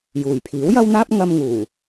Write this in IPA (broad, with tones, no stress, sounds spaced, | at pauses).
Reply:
j uː˨˩ j pʰ iː˨˥ w j ɐ˥ w n̪ aː˥ p̚ ŋ ɐ˧ m ŋ uː˨˩